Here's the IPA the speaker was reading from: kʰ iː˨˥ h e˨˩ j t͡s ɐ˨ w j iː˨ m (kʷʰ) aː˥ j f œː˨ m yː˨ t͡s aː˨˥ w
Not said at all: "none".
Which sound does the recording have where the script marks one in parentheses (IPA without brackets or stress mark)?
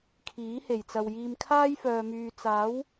kʰ